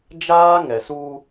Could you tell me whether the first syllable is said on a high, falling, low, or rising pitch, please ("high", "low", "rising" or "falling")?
high